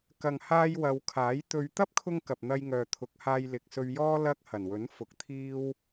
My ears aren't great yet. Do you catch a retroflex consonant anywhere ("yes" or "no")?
no